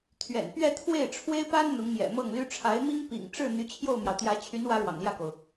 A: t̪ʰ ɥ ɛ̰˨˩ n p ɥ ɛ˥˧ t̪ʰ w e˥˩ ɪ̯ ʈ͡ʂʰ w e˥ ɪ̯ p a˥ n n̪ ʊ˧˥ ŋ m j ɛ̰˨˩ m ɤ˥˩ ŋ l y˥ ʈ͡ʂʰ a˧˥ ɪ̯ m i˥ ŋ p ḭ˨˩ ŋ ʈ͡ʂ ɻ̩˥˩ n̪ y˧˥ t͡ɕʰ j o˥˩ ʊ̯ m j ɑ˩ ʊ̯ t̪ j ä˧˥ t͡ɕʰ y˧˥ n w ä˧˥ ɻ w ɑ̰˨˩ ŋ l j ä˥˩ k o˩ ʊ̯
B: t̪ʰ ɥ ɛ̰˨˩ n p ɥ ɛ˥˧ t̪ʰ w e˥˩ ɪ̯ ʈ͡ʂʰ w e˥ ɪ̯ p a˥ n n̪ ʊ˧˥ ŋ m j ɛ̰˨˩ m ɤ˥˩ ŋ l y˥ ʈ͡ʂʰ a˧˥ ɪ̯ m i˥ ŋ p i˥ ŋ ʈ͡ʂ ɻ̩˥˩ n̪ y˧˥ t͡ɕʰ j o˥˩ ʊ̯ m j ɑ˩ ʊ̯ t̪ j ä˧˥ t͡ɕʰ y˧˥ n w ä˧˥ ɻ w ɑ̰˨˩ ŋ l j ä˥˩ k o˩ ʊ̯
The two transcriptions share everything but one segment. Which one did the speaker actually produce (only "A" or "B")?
A